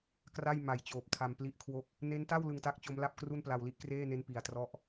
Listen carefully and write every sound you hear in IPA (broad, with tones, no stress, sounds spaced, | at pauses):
k r a˥˩ j m a˨˩ j t͡ɕ oː˨˩ p̚ tʰ a˧ m p l i˥˩ ʔ kʰ w o˥˩ k̚ | n e˦˥ n t a˥˩ w l ɯ˧ ŋ t a˦˥ k̚ t͡ɕ o˦˥ m l a˥˩ p̚ k r u˥˩ n p l a˧ w l i˦˥ ʔ k r eː˥˩ n e˦˥ n p i˧ a̯ t r ɔ˥˩ ʔ